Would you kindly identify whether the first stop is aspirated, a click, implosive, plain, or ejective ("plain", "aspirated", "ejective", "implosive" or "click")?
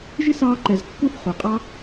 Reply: click